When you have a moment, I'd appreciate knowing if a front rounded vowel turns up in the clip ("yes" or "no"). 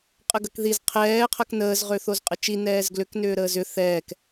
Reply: yes